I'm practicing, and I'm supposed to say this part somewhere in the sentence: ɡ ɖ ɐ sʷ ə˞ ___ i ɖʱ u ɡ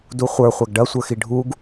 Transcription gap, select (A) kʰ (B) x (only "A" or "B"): B